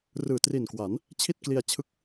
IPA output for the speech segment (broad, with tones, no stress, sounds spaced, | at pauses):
r ɯː˨˩ t r i˨˩ n k w a˩˦ n | t͡ɕʰ i˥˩ t̚ k l i˧ a̯ t͡ɕʰ ɯ˦˥ k̚